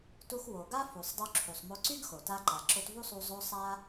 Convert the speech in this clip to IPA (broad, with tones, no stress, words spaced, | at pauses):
tu˧xwo˩ ɡa˥ fu˩sˤdˤu˧ǁʰu˩sˤ mo˧ǀy˥ɡxo˩ta˧ ǃa˩ǁo˧tvu˥sˤu˧ zˤo˧sˤa˧